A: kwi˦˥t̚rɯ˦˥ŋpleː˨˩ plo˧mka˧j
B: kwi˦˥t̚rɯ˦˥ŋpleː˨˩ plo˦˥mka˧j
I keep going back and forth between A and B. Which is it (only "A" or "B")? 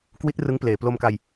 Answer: A